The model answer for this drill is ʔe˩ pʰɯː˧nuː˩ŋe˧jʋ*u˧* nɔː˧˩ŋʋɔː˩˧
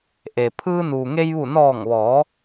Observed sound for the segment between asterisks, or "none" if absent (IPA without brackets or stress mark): u˧˩